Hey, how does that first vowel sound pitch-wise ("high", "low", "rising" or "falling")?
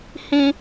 low